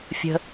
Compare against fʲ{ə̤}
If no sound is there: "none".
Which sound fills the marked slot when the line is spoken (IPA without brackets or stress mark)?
ə̤